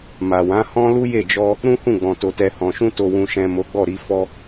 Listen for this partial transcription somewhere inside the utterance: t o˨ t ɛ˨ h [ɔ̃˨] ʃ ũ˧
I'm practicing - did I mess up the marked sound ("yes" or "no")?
no